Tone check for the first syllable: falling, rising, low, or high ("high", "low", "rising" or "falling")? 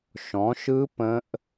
rising